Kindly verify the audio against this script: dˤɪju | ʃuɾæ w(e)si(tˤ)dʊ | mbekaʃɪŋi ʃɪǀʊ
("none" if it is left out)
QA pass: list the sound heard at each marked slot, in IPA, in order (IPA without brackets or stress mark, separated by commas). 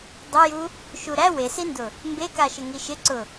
e, n